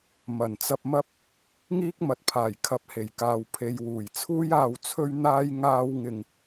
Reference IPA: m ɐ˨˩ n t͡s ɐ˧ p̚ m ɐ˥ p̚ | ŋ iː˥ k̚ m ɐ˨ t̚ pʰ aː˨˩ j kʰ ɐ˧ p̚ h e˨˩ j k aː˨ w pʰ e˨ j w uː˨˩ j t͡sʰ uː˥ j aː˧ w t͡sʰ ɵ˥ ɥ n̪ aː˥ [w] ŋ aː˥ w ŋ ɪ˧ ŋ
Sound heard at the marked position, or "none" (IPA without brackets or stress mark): j